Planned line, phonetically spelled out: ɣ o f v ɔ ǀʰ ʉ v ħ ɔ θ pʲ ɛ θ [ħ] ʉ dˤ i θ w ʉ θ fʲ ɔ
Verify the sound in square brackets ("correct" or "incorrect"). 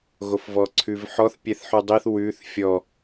correct